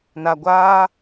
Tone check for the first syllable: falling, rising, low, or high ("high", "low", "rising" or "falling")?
low